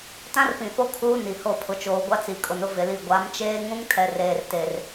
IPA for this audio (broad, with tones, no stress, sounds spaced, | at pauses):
t ã˦ r p ĩ˨ f o˦ kʰ uː˦ n i˨ h o˦˨ pʰ ʊ˨ t͡ʃ oː˨ ɡʷ a˦ t͡s i˨ kʼ ʊ˨ n ʊ˦ v ɪ˨ l i˦˨ ɡʷ a˨˦ m t͡ʃ eː˦ ŋ ũ˦ ŋ tʰ ɛ˨ r eː˨ r t e˨ r